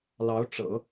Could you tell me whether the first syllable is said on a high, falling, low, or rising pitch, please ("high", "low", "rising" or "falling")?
rising